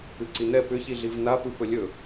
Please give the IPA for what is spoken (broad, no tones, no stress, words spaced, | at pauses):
ɨǀinɛ pʏçiɮiv napɯ pɵlʲɵ